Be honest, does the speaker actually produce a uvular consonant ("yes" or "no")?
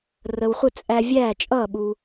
yes